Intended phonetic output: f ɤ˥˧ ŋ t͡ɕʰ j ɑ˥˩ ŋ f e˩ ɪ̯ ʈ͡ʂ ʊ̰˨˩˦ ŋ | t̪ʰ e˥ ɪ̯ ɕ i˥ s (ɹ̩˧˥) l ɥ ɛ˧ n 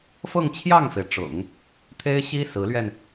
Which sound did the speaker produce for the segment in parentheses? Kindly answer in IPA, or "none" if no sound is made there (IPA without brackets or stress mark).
ɹ̩˧˥